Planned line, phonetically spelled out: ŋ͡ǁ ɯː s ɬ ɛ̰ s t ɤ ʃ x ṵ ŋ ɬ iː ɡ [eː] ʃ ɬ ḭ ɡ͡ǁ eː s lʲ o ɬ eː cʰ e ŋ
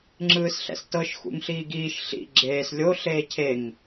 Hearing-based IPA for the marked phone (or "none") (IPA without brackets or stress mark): iː